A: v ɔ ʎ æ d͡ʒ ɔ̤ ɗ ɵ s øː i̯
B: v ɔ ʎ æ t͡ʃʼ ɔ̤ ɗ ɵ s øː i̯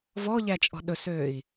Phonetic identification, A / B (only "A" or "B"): B